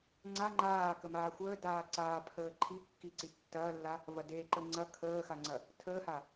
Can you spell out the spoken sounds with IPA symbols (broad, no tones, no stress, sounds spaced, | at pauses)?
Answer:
ŋ͡ǀ a ŋ͡ǃ aː k ə m aː xʷ əː d aː ǀ aː pʰ əː ǃʰ i kː i ǀ i tː ɐː lː a | v ɐ d e ǃ ə ŋ͡ǀ ɐ kʰ əː x a ŋ͡ǀ ɐ | tʰ əː h a